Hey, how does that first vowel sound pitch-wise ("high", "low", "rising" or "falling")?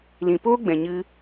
low